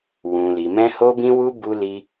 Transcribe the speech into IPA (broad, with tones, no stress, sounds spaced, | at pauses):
w ũ˨ l i˨ m ɛ̃˧ h o˧ b ĩ˧ w u˧ b u˧ l i˧